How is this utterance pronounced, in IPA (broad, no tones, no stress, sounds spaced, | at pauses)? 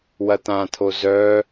w ɐ t̪ ã t̪ʰ o z œ